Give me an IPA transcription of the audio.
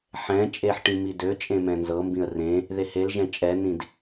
ħɛ̃ t͡ʃʼeħʈĩ midøt͡ʃʼẽ mɛ̃nzɤmbĩə̯ rẽ | ðehelʒɛ̃ t͡ʃʼɛnĩd

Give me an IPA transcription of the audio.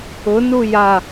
ʊ nuja

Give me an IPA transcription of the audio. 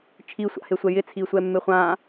t͡ʃʰisʷa̰hesʷɛ jɪt͡sʰisʷɛmːe χʷã

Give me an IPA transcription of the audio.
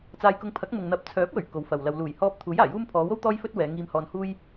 t͡saː˧jkʊ˧ŋ pʰɐ˨˥k̚mʊ˨ŋ n̪ɐ˨˥p̚t͡sʰœː˨˥p̚wɵ˨˩ɥ ko˨˧wfɐ˨wlɐ˧w luː˨˩jhɔː˧p̚ t̪ʰuː˨˥jaː˨˩juː˥m pʰɔː˨˧wo˥w t̪ɔː˥jfɵ˥t̚ wɛː˨˧ŋiː˧mhɔː˧n huː˥j

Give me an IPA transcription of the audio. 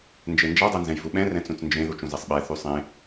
nd͡ʒend͡ʒa dˤɛnzɛ̃jvuɓɛ̃ rɛ̃t͡sũt͡snd͡ʒẽ ðut͡ʃũzesˤɓɛ θysˤẽ

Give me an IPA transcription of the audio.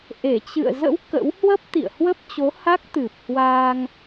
ʔe˧˩t͡ɕɨ̰˧˨ə̯ zə̰˧˥w kə̰˧˥w hwə˦˥p̚t̪ḭ˧˨ə̯hwə˦˥p̚t͡ɕo˨˦ ha˦˥k̚t̪ɨ˨˩p̚ hwaː˧ŋ

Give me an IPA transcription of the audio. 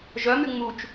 ʒœmy ŋ͡mut͡ʃ

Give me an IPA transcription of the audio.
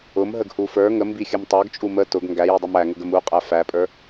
ʊmɦəɡhu fə˞ ŋəmbixʲəm tˤə˞ɡt͡ʃʼu mə tʊɡ ŋɡæjidˤum æŋʊɡəm uqʼæ fæpʼə˞

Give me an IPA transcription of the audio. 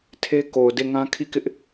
tʰe˦ko˨ʊ̯de˦˨ŋã˦ kʰi˦˨kɪ˦ʔ

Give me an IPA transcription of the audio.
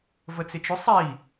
vət͡sɪt͡ʃʊ sˤi

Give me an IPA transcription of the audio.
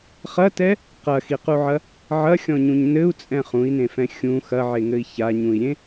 χɐtɛ | qɐxiquʕɐ | ʕɐxʲɔ̃ɲũɲ nɘu̯t͡sʼɛ̃ χũi̯nẽfɛ̃ xʲũ xɐʕeŋɘi̯ çaɲũi̯ɾʲẽ

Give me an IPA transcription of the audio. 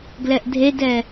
ɡlɛʔdʱedɛ

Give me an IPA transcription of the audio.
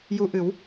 ju˧ʔɨ˨˩˦w

